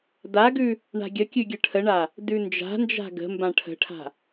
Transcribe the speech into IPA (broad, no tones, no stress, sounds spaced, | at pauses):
d a ɡ ʉ | ɳ a̤ ɡʲ ə kʲ ʉ ɡʲ ə ʈʰ ə ɳ a | d ʉ n d͡ʒ a̤ n d͡ʒ a̤ ɡ ə̤ m b ã ʈʰ ə̤ ʈʰ a̤